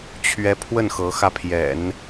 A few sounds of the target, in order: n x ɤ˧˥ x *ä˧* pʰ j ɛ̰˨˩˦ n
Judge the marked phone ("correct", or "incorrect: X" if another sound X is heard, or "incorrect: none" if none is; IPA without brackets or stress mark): correct